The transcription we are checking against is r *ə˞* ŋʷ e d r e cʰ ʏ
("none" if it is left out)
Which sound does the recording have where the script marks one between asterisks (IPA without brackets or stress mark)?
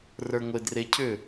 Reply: ə˞